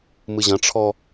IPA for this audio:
mɨʑɐ̃ʈ͡ʂʰɔ

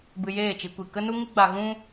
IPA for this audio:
bɨ˧jeː˦˨t͡ʃi˧ kʷi˨kə˦nu˦ ŋɨ˦ɡ͡ba˧ ɣũ˦

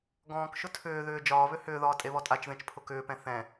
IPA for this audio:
ɡɔ̃ːkʃʊ tʰʏːðʏː d͡ʒɒːβʏ hʏːðɒː tʼeβɔtʼat͡ʃðẽt͡ʃ pʰʊkʏːpɛ̃ θɛ̃

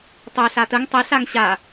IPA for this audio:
tˤœ ɬatəŋ tˤɛɬ aŋɕa

